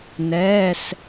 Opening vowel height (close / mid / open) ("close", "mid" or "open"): mid